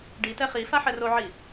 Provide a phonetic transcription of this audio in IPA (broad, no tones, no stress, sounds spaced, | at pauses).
ɖ i t ɛ χ i f a ħ ɛ r o ʕ i